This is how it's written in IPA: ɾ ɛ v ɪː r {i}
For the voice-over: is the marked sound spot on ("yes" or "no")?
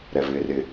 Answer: no